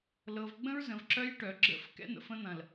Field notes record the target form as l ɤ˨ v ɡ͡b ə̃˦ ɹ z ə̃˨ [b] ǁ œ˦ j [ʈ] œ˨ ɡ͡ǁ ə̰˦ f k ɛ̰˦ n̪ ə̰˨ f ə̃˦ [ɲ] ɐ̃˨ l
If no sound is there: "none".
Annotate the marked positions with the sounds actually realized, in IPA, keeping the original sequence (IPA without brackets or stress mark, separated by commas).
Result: v, ʈ, n̪